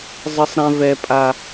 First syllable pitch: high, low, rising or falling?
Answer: high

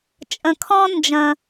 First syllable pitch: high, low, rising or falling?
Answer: low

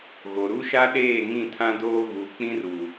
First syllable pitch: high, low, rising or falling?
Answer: low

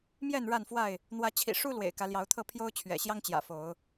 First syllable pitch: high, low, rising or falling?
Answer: falling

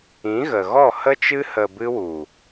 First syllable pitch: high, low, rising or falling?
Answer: rising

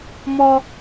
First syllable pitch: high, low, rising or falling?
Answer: high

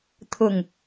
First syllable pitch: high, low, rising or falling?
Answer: low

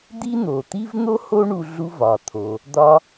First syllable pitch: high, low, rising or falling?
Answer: high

